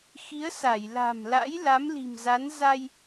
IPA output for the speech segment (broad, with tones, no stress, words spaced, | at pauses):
xi˨˦ə̯sa˧˩j la̤˨˩mla̰˧˥j la˨˦mli̤˨˩mza˨˦n za˧j